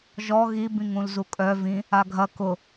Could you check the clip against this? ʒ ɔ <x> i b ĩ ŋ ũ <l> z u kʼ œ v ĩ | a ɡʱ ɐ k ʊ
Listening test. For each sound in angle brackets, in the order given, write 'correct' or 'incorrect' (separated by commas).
incorrect, correct